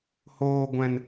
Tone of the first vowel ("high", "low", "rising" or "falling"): low